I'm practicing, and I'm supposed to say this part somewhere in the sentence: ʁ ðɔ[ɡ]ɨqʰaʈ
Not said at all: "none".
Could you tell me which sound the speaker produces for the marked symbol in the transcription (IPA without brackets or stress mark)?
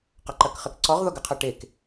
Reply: ɡ